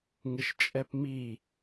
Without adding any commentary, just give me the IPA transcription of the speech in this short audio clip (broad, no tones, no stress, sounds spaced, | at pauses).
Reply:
ŋ ɪ ʃ t͡ʃʼ ɛ p m i